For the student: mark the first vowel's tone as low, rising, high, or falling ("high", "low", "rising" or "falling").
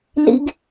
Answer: high